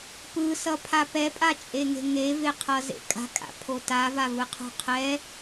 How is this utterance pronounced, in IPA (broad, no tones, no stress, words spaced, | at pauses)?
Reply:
pɯsʌpʰa pɛpʼat͡ʃʼeŋe̤ ŋeveqʰʌzḛ kʼa̤kʼa̰pʰo tavavɯqʰṳ qʰɛ